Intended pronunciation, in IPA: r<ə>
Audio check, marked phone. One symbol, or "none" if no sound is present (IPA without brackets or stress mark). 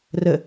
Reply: ə